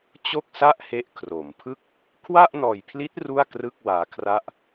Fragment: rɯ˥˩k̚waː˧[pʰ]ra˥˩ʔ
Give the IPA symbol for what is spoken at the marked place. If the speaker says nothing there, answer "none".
kʰ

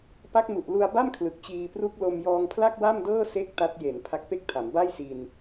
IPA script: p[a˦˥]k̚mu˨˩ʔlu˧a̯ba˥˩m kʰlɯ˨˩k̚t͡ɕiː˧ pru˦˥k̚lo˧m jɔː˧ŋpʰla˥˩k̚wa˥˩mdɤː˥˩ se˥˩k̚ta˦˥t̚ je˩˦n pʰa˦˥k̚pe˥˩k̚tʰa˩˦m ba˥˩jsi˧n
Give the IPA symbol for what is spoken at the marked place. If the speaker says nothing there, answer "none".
a˦˥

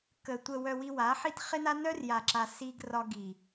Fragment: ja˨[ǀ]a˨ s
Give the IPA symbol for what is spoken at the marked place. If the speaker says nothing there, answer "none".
ǁ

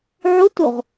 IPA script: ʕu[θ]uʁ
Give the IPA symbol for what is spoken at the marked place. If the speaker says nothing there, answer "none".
t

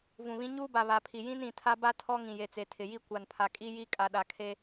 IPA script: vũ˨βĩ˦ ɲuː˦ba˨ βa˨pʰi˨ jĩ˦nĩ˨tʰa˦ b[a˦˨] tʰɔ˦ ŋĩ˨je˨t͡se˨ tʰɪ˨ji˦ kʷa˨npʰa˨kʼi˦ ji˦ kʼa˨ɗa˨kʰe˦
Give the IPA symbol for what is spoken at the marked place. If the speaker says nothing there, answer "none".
a˦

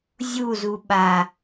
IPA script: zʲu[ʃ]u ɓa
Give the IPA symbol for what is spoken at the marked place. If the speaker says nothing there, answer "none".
z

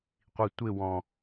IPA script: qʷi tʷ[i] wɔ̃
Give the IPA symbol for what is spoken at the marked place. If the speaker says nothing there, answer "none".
ɪ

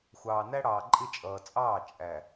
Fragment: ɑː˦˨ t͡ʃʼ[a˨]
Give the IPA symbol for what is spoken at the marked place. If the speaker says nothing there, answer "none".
æ˨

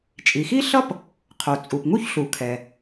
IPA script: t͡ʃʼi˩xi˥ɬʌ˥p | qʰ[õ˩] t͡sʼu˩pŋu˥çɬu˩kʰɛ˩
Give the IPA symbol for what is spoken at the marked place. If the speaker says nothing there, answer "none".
o˩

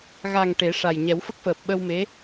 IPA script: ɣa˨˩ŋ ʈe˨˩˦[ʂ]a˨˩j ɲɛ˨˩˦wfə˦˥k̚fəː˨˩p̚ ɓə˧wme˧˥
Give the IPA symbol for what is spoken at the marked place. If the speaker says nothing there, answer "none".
ʂ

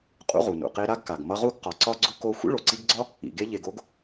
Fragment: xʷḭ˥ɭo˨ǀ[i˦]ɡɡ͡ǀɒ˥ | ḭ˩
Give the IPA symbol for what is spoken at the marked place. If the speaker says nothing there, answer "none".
i˦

